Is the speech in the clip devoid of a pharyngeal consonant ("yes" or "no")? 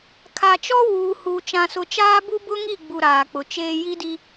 yes